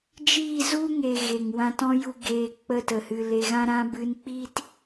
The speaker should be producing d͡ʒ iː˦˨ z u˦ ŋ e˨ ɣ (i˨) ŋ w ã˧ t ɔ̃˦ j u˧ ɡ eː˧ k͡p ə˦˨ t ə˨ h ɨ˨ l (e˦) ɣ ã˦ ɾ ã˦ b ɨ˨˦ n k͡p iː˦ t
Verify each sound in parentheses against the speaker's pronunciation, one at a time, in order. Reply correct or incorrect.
incorrect, incorrect

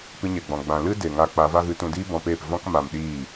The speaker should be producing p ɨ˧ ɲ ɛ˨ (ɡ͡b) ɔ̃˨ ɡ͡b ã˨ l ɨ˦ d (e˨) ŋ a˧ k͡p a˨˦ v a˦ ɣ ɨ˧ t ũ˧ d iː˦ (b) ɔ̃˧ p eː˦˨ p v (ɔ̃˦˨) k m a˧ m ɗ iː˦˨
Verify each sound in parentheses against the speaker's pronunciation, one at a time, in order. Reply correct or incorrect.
correct, correct, correct, incorrect

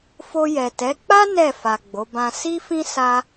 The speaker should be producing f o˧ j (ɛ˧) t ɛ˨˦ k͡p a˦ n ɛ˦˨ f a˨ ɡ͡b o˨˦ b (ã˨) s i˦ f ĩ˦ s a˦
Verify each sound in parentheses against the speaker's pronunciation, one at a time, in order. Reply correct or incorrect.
incorrect, incorrect

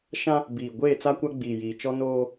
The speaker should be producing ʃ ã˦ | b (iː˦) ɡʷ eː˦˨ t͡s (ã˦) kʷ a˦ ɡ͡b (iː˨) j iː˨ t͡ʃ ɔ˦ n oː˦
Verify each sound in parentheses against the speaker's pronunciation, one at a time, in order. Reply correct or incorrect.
incorrect, incorrect, correct

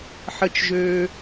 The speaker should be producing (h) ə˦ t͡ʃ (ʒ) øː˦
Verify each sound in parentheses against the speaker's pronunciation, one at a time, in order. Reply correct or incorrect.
incorrect, correct

